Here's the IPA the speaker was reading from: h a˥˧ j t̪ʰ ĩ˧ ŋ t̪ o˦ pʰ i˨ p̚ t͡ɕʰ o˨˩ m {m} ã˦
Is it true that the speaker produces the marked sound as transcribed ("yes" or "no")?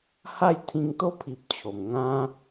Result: no